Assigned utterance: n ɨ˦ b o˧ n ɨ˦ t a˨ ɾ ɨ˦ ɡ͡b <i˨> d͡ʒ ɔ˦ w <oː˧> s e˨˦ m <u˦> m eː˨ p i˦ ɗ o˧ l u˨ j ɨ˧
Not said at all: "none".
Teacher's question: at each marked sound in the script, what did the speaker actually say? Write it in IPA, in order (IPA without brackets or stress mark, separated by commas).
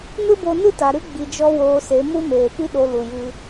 i˧, oː˧, u˦